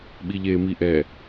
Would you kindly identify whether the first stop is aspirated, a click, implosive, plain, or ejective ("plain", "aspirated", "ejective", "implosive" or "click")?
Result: implosive